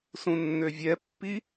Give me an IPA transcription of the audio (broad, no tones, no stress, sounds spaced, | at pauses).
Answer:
s ũ nː ø vʲ ɛ pː i